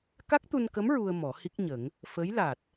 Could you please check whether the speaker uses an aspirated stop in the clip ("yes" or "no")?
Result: no